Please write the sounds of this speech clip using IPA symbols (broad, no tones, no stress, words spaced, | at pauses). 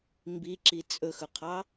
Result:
mbiǁi t͡sʼɵxɵqʰɑ